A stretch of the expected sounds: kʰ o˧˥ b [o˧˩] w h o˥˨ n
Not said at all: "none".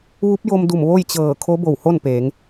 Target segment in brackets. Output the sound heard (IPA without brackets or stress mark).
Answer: o˧˩